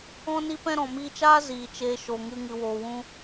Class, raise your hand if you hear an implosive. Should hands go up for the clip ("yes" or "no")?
no